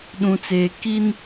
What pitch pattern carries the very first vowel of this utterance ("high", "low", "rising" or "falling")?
low